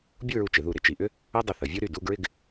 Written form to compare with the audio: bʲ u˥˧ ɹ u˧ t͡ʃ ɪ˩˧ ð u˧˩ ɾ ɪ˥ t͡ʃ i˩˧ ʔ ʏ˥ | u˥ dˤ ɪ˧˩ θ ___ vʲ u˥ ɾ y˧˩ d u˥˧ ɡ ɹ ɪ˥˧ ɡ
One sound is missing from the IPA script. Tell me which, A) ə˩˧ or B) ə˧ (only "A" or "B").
A